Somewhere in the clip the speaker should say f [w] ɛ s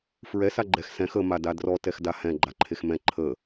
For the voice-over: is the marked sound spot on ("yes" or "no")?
no